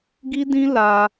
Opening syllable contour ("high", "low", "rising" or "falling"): high